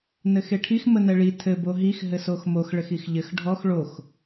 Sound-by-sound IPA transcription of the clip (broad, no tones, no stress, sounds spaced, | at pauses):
n ɘ x e ʈʰ i x m ə n ɛ ɭ i tʰ ɘ b o ɦ i x ɦ ɘ s o x m o x ɭ ɘ x i x ʎ ɘ x ɖʱ ɔ x ɭ o x